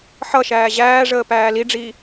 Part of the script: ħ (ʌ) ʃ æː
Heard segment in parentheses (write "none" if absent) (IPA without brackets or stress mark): ʌ